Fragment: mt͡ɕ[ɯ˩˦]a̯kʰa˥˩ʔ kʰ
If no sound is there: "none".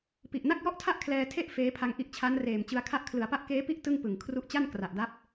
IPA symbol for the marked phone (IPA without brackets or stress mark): ɯ˧